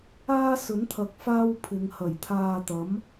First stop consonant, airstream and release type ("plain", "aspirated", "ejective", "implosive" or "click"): aspirated